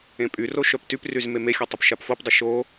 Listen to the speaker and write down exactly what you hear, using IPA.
ẽ pʼ y r o ʃ œ p t y p r y z m e m e xʲ o tˤ o p ʃ a p f o p dˤ ɪ ʃ o

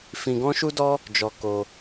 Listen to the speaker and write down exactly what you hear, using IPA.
f ĩ˧ ɡ ɔ̃˦ ʃ u˦ d ɔ˦ | d͡ʒ ɔ˧ k o˧

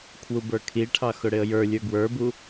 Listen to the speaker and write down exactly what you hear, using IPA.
kʰ w u b ə˞ kʰ i ʈʰ ɑ x ʊ ɽ ɪ ə̯ j ə˞ lʲ ə˞ ɡ w ə˞ b u

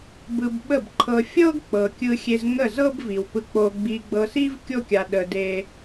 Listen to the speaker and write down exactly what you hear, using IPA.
b ɯ˧ b ɓ ə˦˨ b ǃʰ ɤ˧ fʲ ɤ˦ ɡ k͡p ɤ˨ kʲ ɯ˧ xʲ e˧ z ŋ ə˦˨ z ɤ˦ b v i˨ w p ɯ˧ k͡p o˧ ɡ͡b i˧ ɡ͡b ɤ˧ s i˦ v kʲ o˦ kʲ a˧ ɗ ə˧ d e˦

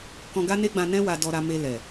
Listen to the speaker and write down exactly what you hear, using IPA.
k ɔ̃˧ ɡ a˦ n e˦ ɡ͡b ã˧ n ɛ̃˦ w a˧ d ɔ˧ ɾ a˧ m e˧ l ɛ˨

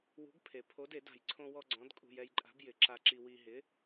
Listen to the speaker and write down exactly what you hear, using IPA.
w ṳ˨˥ ɡ pʰ e˩ pʰ o˨˥ d e˨˩˦ d a̤˩ j ǀʰ õ˧ w ɔ˧ ɡ͡ǀ ɔ̃˨˥ d kʼ ṳ˧ j ɛ˧ j ǃʼ a̤˨˥ b j ɪ˨˩˦ ǁ a˧ ǁ i˧ w i˧ ɦ ɪ˨˥

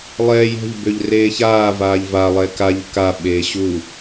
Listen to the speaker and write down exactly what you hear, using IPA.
lˠ ɛː j ɛ̤ ʎ b ø ʎ r eː ç aː v aː ʎ v a lˠ ɛ k a ʎ k a ɓ eː ɕ u

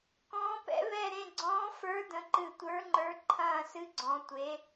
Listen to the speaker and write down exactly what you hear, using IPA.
k ɔ̃ː˧˥ p ɛ̰˧˥ β ɛ˦˨ ɾ ẽ˦˨ ɡ͡ǀ ɔ̃ː˧˥ f ə˞˧˥ d ə̃˧˥ ǃ ɨ˦˨ tʷ ə˞˧˥ ŋ͡ǃ ə˞˧˥ ǃʰ ɐ̃ː˦˨ s ɨ˧˥ ɡ͡ǀ ɔ̃˧˥ tʷ e˧˥

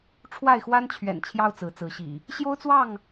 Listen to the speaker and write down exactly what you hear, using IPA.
ʈ͡ʂʰ w a˥˨ ɪ̯ x w a˦ n t͡ɕʰ ɥ ɛ̰˨˩ n t͡ɕʰ j ɑ˦ ʊ̯ t͡s ɹ̩˨˦ t͡s ɹ̩˨˦ ɕ ḭ˨˩ | ɕ j o˦ ʊ̯ t͡s w ɑ˥˨ ŋ

